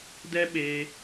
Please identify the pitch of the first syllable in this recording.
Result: high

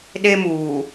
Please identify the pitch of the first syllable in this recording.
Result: high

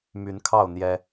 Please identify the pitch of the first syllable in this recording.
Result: rising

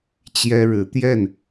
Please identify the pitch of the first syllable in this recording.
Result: high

